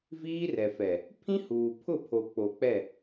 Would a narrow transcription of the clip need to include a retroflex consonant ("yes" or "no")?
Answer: no